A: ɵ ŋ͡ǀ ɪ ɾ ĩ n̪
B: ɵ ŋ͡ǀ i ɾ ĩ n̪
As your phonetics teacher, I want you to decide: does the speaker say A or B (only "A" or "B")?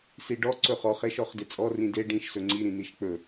B